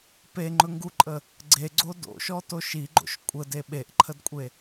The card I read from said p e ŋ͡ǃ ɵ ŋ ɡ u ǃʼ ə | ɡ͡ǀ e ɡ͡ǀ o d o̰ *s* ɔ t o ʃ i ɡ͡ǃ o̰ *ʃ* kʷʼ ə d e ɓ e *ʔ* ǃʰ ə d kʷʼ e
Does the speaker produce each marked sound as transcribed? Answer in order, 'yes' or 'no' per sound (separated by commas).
no, yes, yes